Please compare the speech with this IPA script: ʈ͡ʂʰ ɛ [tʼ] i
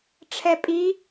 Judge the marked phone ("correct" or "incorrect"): incorrect